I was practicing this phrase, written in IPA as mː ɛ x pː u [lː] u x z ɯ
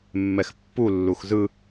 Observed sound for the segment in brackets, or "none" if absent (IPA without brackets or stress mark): lː